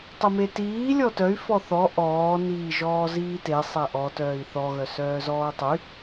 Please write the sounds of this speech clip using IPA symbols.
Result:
tˤimetiː lʲɔtœy̯ fɔθɔ ʔɔː niːʒɔːziːte sˤɛʔɔ tœːi̯θɔ ɣœsœːzɔːtˤy

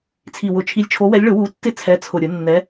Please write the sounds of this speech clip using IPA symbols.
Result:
t͡sʰi˨˩wʊ˨˩˦t͡ʃʰi˨˦lʲ t͡ʃʰo˨˦wɛ˨˦lʲɭʊ˨˩˦ wu˨˦tːɪ˦˨ t͡sʰɛ˨˦t͡sʰʊ˨˩ɾʲʊ˨˩˦ nːɛ˨˦

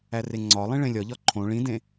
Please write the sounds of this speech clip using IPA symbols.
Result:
æreŋ͡ǀɒlˠĩ ɭẽlʲɒʎɒ ǃʰõ ɭĩdẽ

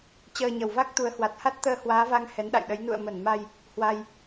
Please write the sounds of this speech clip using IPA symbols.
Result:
t͡ɕəː˧ɲə˧˩w va˦˥k̚ t̪u˨˦ə̯hwa˨˩t̚ ha˦˥t̚t̪əː˧ hwaː˨˦va˧ŋ hɛ˨˦nɗa̰˧˨jɗə˨˦j nṵ˧˨ə̯mə˧˩nma˧j | hwa˧j

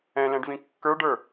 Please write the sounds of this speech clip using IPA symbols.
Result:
ɛ̃lɛ̃ɖvĩ kːə˞ɖə˞

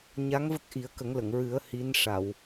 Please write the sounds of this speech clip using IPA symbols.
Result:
ɲa˧˥ŋvə˦˥k̚ ʔi˨˩˦ə̯kə˨˩˦ŋlə˨˩˨ŋɹɨ˨˩˦ə̯ hi˧˥nʂa˨˩˨w

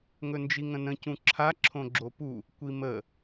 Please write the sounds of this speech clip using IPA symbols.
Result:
ŋɵnd͡ʒiŋə̃nə̃ cũǁʰa ǁʰõɡ͡ǁopu | kʷimə

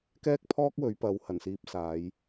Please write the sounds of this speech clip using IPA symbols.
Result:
kɛː˥k̚ pʰɔː˥k̚wɵ˨˧ɥpɐ˨˧w hɐ˨˩nsiː˧p̚saː˨˧j

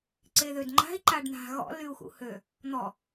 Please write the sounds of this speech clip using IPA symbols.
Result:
ǀeðødŋ͡ǃa̤i̯ ǃaɖn̪a̤ ɣɔ̰ lyu̯xṵhø | n̪ɔ

